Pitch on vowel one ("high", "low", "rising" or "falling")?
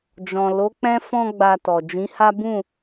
low